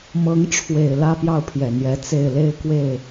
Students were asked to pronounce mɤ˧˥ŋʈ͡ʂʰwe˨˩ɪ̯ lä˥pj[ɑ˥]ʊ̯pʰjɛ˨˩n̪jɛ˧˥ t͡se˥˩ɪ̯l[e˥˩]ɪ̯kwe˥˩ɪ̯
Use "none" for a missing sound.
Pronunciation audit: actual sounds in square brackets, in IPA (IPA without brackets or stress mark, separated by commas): ɑ˥˩, e˥